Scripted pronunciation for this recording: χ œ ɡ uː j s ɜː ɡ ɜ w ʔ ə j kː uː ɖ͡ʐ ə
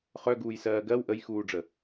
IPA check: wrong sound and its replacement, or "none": kː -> x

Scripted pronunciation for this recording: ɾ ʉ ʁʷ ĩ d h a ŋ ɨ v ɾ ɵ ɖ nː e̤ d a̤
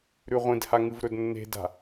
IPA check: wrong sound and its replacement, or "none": ɖ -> d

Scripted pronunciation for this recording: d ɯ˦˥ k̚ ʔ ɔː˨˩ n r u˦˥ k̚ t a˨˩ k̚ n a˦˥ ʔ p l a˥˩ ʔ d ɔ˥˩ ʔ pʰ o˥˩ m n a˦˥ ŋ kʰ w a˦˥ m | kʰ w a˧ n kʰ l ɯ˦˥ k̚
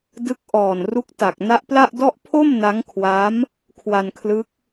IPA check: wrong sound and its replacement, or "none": none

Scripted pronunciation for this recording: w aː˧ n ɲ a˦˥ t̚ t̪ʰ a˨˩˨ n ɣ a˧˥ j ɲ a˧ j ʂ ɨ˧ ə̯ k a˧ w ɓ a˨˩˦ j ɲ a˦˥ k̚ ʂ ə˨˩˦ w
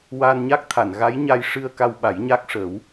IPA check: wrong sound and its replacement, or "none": t̚ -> k̚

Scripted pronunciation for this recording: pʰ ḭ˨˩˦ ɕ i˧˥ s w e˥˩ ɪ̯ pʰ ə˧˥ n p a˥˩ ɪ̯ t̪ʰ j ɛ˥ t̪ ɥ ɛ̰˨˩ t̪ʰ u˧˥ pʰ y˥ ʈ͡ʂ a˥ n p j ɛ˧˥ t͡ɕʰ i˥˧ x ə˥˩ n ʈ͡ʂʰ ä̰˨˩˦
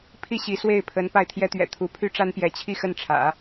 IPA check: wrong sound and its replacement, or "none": ḭ˨˩˦ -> i˥˩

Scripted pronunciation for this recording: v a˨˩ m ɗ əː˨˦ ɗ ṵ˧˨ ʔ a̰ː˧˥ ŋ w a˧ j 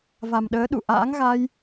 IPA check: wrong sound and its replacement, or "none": w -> ɣ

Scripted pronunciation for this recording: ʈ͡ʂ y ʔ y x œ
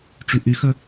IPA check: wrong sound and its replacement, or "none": none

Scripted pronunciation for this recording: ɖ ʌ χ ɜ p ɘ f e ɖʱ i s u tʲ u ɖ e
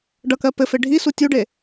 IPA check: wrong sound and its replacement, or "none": χ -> k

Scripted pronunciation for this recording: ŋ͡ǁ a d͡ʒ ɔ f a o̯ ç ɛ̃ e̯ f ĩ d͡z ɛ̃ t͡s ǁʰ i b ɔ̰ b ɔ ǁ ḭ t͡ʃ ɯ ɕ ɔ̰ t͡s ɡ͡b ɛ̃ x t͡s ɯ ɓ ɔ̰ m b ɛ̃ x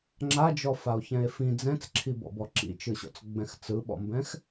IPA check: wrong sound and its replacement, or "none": none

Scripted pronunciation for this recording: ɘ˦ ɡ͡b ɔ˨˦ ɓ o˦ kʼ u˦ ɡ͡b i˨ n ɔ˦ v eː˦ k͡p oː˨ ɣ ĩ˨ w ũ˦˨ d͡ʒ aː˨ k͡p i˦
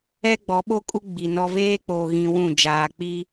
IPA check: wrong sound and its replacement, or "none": ɘ˦ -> ɛ˦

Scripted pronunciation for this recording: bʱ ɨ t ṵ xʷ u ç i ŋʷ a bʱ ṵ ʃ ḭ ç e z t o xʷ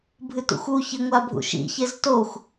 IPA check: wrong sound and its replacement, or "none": none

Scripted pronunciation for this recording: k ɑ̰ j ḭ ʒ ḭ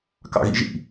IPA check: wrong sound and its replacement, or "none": j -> ɣ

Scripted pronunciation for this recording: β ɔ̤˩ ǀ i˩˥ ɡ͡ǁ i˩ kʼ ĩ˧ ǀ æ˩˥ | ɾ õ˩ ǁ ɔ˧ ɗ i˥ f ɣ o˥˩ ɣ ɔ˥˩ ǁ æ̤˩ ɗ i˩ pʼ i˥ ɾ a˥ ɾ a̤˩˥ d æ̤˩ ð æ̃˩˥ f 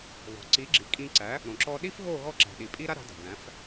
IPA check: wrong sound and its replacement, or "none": none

